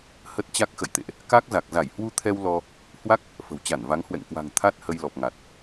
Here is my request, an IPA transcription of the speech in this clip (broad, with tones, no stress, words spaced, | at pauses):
hə˦˥t̚t͡ɕa˦˥k̚xə̰˧˨jt̪ḛ˧˨ʔ | ka˦˥k̚za˨˩k̚za˧˩j hwu˧t̪ʰɛ˧w lɔ˧ | hwa˦˥k̚ | fə̤˨˩wt͡ɕa˧˩nva˨˦ŋ hwɛ̰˧˨ŋkwa̤˨˩ŋ t̪ʰa˦˥t̚hə˧jlɔ˨˩p̚ŋa˨˩t̚